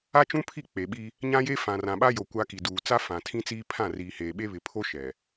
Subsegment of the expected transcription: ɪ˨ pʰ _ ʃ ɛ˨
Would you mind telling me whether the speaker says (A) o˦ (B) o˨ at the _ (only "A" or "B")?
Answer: A